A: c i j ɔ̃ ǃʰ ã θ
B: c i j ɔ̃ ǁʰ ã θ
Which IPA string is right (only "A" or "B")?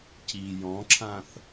B